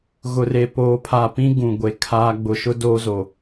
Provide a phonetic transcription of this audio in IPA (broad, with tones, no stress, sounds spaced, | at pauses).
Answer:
ɣ ʊ˨ r e˨ p oː˨ pʰ a˨ p ĩ˦ ɡ ũ˨ ɡʷ e˨ kʰ aː˦ ɡ͡b ʊ˨ ʃ ʊ˦ d oː˦ z o˨